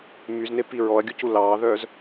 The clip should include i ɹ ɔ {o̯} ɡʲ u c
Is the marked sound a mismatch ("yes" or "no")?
yes